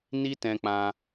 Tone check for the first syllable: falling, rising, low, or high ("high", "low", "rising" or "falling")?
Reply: high